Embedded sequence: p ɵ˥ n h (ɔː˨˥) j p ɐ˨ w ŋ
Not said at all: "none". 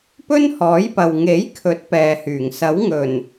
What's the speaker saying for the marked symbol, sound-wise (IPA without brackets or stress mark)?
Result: ɔː˨˥